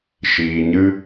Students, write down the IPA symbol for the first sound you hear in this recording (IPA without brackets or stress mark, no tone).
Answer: ʃ